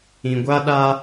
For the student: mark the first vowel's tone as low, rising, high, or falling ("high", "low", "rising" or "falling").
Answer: low